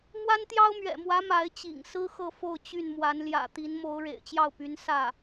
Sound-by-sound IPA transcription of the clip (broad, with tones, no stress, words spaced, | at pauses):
mwa˥nt̪jɑ˥ʊ̯mɥɛ̰˨˩mwä˧˥ ma˧˥ɪ̯t͡ɕḭ˨˩ŋ sɹ̩˥ xɤ˥˧fo˥˧ʊ̯ t͡ɕy˥˩nmwa˧˥n ljä̰˨˩t̪i˧˥nmo˧˥ʊ̯ ɻḛ˨˩ɪ̯t͡ɕjɑ˥˩ʊ̯py˧˥n sä˥˩